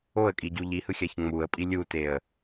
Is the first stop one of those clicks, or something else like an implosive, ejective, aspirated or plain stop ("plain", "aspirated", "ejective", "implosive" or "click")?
ejective